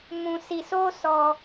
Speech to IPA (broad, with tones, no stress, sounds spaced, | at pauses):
m ũ˧ s i˧ s o˦ s ɔ˧